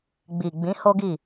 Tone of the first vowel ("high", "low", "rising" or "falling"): low